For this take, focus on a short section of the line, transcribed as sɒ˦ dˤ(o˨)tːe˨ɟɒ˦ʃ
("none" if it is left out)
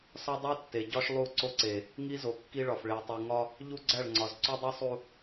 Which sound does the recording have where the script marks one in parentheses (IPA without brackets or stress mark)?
o˦